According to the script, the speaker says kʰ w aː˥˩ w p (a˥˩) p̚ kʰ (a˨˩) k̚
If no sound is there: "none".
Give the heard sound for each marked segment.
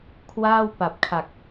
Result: a˨˩, a˨˩

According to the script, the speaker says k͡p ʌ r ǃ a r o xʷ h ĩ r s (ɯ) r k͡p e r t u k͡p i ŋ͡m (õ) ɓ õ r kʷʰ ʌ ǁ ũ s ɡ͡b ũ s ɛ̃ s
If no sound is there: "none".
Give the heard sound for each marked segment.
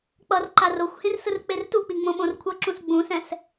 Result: ɯ, õ

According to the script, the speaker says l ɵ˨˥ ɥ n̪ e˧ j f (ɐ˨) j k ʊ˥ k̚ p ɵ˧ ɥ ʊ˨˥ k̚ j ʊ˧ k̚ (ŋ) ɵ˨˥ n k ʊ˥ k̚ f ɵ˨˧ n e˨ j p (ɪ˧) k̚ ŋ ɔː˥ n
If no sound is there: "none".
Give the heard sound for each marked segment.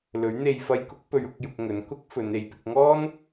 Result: ɐ˧, ŋ, ɪ˧

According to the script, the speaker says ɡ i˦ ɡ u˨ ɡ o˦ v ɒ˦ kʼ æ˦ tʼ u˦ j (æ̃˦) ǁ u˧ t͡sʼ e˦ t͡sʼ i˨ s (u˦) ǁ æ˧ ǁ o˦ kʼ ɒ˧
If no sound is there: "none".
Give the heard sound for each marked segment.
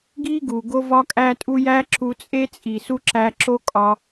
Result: æ˦, u˦

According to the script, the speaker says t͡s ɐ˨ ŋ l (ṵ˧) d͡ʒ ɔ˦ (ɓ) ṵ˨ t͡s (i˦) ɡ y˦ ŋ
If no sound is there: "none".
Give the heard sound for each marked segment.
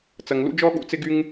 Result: ṵ˦, ɠ, ɪ˦

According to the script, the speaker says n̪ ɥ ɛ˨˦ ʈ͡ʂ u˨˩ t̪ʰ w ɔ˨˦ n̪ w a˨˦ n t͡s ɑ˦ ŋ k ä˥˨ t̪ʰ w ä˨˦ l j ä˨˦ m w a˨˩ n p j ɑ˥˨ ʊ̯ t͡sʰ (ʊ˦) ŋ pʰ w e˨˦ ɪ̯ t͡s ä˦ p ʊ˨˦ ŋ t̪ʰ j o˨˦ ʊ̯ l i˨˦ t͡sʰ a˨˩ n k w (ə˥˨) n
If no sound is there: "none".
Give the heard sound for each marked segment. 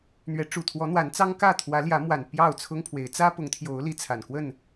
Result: ʊ˦, ə˥˨

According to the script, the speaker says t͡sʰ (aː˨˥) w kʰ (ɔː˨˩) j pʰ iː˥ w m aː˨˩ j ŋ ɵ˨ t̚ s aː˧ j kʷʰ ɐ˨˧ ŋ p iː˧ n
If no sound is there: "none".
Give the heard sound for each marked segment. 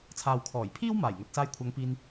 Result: aː˨, ɔː˨˩

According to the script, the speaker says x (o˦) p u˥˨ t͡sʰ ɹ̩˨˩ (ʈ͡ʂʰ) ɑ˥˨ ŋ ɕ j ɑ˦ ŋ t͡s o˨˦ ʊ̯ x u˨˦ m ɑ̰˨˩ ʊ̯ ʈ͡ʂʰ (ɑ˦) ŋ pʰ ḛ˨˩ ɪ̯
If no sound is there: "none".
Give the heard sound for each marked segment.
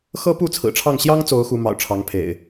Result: ɤ˦, ʈ͡ʂʰ, ɑ˨˦

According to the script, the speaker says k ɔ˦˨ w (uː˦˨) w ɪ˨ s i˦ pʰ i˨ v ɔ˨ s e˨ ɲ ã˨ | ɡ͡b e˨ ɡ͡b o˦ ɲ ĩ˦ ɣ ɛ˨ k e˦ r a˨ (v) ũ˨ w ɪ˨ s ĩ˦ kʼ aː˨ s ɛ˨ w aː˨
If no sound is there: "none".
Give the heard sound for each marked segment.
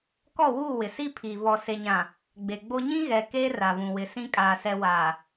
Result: uː˦˨, v

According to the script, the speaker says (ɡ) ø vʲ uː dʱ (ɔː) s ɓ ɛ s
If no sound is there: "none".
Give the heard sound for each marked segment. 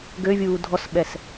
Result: ɡ, ɔ

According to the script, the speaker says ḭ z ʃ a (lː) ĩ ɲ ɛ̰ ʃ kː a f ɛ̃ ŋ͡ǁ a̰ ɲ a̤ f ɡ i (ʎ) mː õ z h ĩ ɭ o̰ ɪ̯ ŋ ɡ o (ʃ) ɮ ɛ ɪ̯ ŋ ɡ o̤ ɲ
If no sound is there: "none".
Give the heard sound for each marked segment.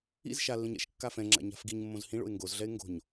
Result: lː, ɲ, z

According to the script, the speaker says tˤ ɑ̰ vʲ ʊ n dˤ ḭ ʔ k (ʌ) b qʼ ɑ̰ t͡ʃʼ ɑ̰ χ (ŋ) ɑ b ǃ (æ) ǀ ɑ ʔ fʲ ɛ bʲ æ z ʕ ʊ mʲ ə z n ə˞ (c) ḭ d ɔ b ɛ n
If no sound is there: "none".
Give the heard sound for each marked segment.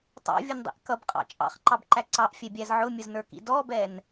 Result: ʌ, ǃ, æ, k

